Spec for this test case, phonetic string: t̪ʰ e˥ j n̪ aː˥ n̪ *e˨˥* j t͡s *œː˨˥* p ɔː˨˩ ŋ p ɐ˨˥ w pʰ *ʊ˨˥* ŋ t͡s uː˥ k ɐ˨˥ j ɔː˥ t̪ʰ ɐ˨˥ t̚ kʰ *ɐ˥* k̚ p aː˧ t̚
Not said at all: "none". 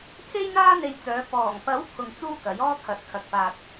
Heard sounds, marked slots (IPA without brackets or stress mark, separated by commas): e˧, œː˨˧, ʊ˧, ɐ˨